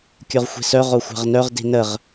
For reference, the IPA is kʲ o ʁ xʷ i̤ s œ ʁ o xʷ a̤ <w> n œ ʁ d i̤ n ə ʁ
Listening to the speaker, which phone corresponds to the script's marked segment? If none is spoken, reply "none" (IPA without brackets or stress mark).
ʁ